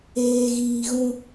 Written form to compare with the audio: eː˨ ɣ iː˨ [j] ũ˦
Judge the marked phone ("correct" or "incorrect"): incorrect